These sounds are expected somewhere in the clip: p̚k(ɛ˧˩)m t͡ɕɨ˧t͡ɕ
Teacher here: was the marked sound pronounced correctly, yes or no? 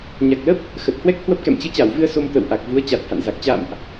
no